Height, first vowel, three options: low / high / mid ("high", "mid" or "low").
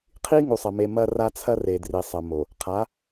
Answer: high